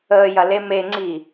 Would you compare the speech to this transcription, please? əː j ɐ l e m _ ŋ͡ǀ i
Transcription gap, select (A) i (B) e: B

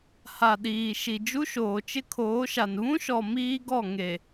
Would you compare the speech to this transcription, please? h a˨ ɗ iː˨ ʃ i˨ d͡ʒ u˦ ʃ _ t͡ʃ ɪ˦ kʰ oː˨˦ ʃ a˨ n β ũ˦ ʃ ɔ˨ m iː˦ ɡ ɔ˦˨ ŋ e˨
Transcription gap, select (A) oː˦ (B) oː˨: B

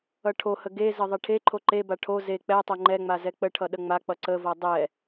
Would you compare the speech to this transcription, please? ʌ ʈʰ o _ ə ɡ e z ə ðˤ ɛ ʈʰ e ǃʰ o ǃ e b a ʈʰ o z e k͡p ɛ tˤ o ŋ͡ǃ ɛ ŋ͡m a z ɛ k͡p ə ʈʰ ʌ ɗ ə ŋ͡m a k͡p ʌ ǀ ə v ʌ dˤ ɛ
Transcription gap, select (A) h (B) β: A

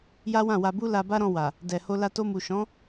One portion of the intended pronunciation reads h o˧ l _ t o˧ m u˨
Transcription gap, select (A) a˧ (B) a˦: A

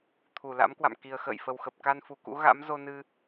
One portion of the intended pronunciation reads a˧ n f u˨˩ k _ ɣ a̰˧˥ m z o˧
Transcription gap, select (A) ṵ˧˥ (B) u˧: A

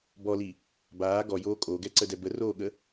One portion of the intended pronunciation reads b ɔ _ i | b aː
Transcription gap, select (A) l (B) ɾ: A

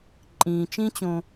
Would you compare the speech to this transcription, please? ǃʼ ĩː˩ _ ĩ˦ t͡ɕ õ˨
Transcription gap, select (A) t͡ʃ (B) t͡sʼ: A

